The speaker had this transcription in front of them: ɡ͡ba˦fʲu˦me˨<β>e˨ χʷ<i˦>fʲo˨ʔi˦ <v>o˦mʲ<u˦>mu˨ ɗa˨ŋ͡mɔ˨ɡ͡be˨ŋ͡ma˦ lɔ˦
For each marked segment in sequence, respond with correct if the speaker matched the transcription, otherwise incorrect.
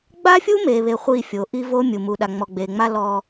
correct, incorrect: i˦˨, correct, incorrect: u˨

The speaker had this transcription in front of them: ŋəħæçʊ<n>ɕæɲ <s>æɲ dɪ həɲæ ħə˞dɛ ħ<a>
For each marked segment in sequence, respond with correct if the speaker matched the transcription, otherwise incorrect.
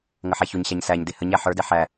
incorrect: ɲ, correct, incorrect: æ

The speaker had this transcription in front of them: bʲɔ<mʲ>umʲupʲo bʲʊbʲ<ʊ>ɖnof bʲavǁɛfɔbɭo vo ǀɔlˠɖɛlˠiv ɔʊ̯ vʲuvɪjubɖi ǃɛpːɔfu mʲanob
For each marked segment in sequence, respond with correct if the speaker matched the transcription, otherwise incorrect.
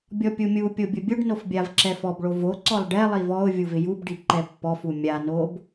incorrect: pʲ, correct

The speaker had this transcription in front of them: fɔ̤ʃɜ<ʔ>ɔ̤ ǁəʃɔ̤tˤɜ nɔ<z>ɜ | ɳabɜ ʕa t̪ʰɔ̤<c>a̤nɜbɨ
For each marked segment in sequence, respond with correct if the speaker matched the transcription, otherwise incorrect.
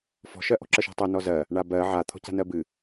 correct, correct, correct

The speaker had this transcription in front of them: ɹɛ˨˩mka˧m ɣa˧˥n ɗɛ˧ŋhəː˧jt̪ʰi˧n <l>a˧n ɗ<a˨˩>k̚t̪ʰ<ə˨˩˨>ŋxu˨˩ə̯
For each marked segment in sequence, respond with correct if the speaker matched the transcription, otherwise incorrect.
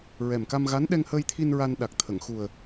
incorrect: ɹ, correct, correct

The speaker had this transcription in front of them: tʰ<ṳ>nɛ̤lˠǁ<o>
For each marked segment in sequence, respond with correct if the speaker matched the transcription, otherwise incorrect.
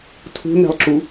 correct, incorrect: u

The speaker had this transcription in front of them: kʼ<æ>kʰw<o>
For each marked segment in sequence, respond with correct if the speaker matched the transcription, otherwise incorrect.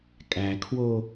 correct, correct

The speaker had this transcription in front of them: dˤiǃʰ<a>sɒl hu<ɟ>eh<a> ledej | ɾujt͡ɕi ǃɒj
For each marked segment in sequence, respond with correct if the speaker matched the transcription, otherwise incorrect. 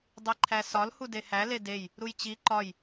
incorrect: æ, incorrect: d, incorrect: æ

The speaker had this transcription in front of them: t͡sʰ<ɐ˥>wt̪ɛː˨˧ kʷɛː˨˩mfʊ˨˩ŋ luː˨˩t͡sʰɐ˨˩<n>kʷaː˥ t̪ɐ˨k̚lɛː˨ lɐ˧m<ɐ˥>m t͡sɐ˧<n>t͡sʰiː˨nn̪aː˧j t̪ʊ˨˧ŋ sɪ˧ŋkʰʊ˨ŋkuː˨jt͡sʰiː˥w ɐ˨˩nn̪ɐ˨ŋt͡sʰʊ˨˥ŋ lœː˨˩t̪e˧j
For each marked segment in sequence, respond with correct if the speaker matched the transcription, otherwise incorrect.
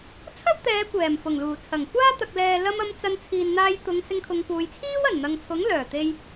correct, incorrect: ŋ, incorrect: ɐ˨˧, correct

